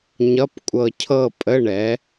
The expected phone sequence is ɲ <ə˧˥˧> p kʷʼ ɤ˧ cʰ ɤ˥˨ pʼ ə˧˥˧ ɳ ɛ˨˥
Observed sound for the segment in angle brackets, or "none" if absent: ʌ˧˥˧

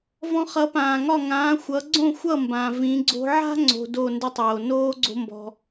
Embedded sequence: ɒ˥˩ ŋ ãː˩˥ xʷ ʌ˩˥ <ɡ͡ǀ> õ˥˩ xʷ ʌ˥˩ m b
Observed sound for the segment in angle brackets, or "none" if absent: ɡ͡ǀ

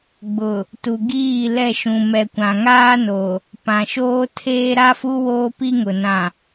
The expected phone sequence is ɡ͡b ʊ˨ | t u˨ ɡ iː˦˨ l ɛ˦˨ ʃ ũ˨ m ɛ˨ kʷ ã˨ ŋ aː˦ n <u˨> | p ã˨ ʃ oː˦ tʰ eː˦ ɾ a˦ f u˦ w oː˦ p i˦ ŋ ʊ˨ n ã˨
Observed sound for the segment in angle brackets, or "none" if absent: o˨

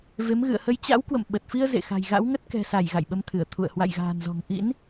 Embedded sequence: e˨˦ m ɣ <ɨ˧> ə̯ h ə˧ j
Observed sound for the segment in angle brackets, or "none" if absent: ɨ̰˧˨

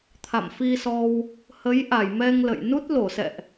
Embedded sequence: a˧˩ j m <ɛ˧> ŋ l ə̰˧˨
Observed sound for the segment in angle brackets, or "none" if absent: ɛ˧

